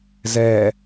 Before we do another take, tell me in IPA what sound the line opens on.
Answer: z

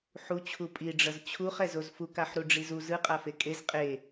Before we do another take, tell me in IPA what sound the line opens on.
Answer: ħ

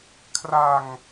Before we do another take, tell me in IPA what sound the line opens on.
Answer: kʰ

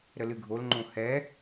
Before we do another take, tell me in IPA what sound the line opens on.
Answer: ɾ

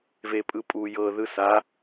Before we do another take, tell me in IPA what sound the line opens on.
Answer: v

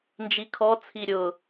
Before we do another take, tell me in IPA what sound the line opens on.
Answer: n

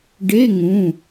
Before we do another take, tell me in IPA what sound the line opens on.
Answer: ɖ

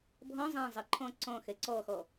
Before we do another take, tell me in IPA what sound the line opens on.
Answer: bʱ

